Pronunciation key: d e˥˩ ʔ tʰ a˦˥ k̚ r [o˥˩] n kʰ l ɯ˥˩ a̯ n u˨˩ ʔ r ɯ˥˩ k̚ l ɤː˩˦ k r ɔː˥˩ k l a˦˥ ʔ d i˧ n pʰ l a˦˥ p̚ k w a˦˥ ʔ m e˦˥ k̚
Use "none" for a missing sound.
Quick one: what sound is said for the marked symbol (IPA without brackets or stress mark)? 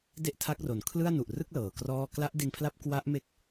o˩˦